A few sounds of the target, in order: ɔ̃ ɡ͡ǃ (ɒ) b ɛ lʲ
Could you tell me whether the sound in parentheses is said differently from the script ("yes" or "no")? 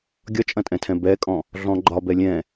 no